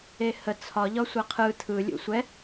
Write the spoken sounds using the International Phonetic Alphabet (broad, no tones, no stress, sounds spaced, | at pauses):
e h ə t͡sʰ ɒ ʎ ɒ sʷ ɛ qʰ ɯ tʰ ɯ lʲ ṵ sʷ ɛ